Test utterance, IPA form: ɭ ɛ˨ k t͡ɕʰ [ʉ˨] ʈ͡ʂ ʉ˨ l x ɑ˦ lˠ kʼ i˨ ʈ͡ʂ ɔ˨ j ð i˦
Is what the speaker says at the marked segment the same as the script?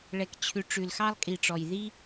yes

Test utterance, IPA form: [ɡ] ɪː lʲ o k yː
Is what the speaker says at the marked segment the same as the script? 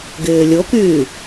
yes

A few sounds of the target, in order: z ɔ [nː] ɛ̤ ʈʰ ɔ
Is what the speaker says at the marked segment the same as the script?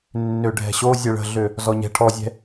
no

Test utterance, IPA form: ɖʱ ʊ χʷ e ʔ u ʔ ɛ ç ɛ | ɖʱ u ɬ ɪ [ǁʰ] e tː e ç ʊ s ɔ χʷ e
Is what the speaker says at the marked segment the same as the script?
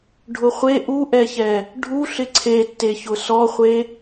no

